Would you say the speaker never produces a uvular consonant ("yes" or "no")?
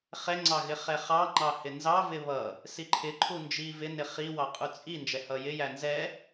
no